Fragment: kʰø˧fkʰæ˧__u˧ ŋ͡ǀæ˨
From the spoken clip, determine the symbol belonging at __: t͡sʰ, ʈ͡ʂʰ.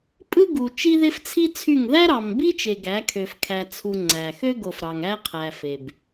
t͡sʰ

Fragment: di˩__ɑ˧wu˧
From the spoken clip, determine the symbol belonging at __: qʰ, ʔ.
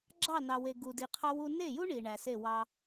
qʰ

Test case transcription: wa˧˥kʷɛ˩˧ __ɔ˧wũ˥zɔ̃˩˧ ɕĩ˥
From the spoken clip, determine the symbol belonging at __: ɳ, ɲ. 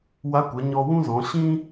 ɲ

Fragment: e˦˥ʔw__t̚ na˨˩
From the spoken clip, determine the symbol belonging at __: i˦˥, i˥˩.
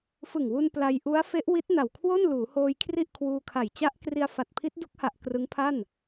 i˦˥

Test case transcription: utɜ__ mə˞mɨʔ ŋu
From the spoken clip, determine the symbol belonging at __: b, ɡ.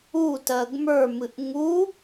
ɡ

